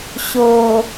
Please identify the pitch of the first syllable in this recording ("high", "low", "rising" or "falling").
low